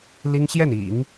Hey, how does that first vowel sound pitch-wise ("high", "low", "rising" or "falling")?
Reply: high